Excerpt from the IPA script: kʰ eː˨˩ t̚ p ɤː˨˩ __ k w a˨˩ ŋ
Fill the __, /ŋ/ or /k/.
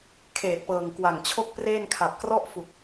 ŋ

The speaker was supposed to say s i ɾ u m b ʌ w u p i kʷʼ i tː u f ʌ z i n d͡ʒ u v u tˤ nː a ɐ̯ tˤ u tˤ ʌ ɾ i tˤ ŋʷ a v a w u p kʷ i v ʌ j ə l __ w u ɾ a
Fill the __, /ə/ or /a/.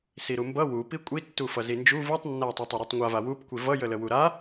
ə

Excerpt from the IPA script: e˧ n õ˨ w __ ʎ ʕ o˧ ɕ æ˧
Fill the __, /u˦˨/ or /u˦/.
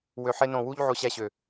u˦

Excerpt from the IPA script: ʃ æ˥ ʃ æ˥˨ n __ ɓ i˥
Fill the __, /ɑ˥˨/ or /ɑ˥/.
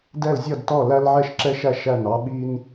ɑ˥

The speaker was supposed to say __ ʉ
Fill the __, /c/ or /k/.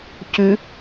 c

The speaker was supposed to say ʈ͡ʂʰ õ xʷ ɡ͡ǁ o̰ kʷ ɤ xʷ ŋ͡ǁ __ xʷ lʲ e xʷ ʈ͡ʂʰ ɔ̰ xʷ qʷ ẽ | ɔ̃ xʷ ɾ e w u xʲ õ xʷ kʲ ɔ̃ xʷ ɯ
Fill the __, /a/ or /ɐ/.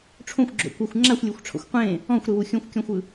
a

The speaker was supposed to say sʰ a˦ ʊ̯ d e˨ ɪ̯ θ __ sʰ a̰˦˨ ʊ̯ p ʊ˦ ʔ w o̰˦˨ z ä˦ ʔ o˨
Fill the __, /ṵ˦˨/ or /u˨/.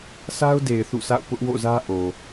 ṵ˦˨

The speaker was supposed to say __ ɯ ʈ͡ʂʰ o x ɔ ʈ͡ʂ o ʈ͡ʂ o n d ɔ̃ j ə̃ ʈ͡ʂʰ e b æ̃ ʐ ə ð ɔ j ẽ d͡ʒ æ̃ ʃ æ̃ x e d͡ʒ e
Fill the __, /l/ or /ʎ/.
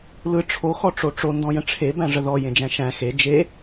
l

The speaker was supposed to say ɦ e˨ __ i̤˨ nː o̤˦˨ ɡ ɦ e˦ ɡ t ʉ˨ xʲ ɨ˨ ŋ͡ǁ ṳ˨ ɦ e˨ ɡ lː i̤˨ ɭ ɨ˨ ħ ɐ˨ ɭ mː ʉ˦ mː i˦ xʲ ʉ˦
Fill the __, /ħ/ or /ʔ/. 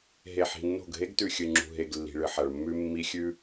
ħ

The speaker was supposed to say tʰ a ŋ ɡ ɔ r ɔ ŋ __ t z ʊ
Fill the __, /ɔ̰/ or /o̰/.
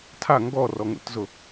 o̰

